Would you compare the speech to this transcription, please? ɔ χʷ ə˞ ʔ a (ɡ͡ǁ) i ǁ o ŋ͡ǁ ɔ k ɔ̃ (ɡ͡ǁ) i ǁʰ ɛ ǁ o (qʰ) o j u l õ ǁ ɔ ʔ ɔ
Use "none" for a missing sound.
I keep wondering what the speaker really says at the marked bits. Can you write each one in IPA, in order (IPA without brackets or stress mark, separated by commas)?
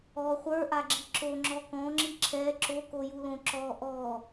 ɡ͡ǁ, ŋ͡ǁ, k